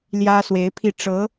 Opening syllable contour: high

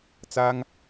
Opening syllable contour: high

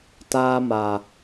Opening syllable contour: high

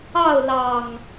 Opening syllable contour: falling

